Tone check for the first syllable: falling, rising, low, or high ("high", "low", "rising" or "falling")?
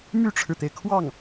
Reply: falling